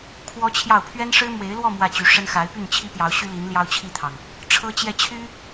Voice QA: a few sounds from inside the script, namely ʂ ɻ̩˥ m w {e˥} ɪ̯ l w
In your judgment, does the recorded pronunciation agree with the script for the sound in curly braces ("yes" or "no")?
no